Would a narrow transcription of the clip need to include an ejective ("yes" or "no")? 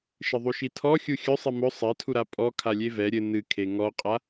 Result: yes